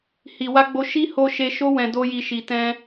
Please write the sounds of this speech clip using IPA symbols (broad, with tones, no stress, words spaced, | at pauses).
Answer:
hi˨wa˧ɡ͡bo˧ ʃi˦ho˧ ʃe˧ ʃo˧wɛ̃˨ do˧ji˨ʃi˨ tɛ̃˧